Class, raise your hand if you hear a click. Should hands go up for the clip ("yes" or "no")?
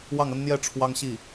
no